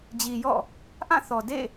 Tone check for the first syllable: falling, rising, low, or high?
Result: low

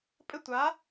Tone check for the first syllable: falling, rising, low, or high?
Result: falling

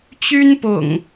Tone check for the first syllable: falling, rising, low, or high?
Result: high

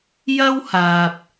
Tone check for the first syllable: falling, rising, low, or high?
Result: high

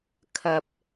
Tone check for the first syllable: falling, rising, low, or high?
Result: low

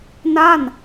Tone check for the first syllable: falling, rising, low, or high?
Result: falling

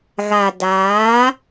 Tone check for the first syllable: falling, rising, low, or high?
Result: low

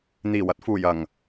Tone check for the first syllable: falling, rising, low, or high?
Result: low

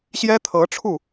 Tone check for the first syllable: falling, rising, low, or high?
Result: high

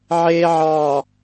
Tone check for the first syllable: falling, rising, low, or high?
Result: low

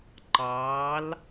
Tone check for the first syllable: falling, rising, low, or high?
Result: rising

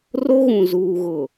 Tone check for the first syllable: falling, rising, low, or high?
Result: high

